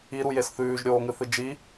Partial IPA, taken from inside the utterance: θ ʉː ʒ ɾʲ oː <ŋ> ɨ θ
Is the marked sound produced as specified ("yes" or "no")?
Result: yes